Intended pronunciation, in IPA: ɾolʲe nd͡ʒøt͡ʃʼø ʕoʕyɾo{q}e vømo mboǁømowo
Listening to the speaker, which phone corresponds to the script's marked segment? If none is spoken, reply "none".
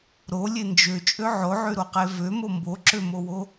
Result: q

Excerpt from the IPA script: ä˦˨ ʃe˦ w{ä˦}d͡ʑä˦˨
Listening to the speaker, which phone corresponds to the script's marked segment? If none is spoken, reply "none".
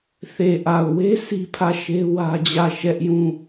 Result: ä˦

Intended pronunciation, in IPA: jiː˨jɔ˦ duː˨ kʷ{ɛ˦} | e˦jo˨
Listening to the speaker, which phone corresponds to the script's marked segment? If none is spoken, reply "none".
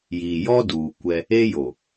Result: ɛ˦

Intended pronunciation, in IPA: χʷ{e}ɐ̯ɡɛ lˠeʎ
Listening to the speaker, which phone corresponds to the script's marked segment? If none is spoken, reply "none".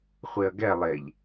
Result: e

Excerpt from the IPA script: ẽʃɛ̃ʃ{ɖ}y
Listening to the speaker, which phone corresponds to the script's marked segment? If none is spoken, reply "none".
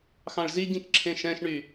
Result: ɳ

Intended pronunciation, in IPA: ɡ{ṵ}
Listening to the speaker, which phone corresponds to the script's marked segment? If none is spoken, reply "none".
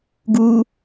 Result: u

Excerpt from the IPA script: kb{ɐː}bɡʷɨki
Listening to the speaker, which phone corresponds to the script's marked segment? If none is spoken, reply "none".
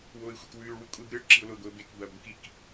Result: ɐː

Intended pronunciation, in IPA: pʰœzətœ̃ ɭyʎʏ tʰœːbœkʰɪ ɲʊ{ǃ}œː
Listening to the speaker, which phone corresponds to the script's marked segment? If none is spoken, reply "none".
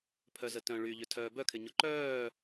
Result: ǃ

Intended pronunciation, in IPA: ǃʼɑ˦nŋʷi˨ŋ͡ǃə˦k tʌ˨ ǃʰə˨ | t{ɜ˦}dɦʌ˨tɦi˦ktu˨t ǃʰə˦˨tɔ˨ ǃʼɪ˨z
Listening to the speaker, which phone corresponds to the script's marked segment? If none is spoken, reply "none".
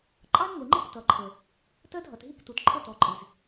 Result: ɜ˦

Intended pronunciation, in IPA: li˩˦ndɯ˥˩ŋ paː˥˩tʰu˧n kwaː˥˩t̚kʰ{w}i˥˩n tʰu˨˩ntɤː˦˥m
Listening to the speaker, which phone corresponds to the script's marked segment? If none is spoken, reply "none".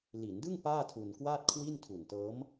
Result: w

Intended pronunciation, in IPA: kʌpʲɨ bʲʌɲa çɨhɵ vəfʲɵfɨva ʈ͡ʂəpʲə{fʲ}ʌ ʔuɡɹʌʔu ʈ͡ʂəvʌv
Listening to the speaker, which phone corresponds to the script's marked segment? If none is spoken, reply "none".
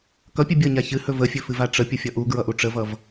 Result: fʲ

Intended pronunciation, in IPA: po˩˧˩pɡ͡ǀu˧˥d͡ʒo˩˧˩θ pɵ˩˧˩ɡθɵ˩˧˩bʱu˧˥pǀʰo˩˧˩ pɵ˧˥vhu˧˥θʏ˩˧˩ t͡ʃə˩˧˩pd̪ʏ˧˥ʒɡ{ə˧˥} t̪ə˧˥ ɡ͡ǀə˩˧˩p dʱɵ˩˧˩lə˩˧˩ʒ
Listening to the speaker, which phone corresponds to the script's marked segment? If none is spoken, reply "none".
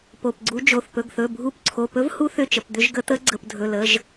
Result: ə˧˥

